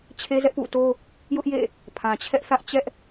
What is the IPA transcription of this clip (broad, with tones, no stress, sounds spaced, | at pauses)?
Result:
t͡ɕʰ e˦ z ɛ˦ ʔ p ṵ˦˨ t o˦ | j ʊ˦ ʔ j ḛ˦˨ | pʰ ã˨ t͡ɕʰ ɛ˦ ʔ θ ä˦ ʔ t͡ɕ ɛ˦ ʔ